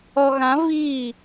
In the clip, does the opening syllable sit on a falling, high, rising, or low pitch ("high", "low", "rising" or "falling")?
low